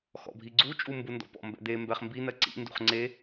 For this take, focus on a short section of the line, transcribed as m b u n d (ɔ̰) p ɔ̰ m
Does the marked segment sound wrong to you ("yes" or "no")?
no